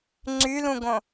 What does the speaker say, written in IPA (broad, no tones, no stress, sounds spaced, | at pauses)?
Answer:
ŋ͡ǀ y l ũ ɡ õ